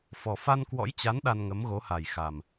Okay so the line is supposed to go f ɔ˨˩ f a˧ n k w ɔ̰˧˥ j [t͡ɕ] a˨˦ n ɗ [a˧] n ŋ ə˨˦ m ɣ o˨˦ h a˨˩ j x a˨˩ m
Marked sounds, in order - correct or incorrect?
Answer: correct, correct

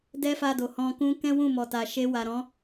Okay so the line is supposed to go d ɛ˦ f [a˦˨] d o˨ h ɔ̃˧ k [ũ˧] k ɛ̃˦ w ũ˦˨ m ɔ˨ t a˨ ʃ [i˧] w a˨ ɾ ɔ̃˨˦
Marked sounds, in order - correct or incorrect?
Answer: incorrect: a˧, incorrect: ũ˦, incorrect: e˧

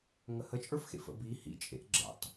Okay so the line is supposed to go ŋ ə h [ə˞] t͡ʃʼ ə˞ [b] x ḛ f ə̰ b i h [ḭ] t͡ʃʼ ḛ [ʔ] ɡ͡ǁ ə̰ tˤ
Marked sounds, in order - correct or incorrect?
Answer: incorrect: ə, incorrect: f, correct, correct

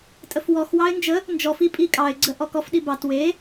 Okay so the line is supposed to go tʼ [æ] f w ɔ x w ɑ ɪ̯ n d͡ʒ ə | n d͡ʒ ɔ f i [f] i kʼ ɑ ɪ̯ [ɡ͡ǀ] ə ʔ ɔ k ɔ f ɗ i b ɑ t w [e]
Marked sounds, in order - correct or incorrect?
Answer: incorrect: ə, incorrect: pʼ, correct, correct

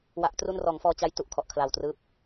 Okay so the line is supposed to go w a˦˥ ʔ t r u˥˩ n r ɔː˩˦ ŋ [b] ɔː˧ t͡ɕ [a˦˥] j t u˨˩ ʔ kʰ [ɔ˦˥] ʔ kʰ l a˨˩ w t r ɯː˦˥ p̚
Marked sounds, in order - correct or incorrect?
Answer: incorrect: f, correct, incorrect: ɔ˨˩

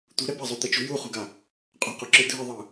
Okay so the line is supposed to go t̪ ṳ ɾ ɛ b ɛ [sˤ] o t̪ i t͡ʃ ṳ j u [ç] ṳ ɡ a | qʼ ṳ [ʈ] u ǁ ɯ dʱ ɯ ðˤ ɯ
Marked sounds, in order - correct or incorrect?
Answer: incorrect: zˤ, incorrect: χ, incorrect: q

